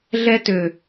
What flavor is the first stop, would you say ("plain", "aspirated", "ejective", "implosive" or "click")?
plain